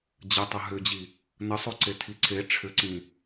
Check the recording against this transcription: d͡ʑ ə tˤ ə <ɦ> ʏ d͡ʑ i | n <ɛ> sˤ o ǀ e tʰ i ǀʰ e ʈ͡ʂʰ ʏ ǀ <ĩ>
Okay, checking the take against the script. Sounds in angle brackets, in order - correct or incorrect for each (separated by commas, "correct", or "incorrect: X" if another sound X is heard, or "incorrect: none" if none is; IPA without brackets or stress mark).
correct, incorrect: ə, correct